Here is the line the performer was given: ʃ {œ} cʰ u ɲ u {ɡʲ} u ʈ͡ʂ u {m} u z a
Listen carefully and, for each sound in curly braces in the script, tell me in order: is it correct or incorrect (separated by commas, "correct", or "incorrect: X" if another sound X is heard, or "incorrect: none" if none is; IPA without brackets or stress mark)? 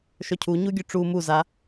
correct, correct, correct